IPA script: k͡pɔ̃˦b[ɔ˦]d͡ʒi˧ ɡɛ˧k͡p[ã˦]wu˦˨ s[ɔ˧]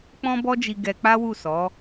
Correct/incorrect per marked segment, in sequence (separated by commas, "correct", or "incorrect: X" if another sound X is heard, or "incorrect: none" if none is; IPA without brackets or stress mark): correct, incorrect: a˦, incorrect: ɔ˨˦